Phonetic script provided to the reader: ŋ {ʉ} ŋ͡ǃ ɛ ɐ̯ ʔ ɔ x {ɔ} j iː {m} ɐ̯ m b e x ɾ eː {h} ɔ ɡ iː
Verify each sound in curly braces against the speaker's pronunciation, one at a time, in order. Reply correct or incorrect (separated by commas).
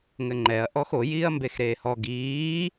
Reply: incorrect, incorrect, incorrect, correct